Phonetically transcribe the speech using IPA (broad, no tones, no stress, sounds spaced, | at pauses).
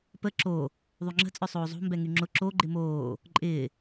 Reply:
p ə ǁ o | ðˤ y ŋ͡ǁ ə̤ t͡sʼ œ sˤ oː zˤ o̤ m b ɛ ŋ y ŋ͡ǁ ʊ ǁ o ɡ͡ǃ ɪ m oː | ǃʼ ɪː